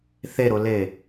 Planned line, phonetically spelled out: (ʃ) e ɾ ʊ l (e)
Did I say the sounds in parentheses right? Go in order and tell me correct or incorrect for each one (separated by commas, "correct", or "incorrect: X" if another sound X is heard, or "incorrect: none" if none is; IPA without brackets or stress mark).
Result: incorrect: θ, correct